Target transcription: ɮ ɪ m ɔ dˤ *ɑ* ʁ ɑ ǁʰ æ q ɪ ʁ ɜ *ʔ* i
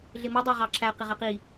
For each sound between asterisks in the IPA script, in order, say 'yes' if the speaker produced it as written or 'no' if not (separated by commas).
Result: yes, no